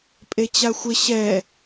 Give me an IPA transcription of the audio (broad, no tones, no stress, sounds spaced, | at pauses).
pʼ e t͡ɕ a xʷ ɪ ɕ ɛ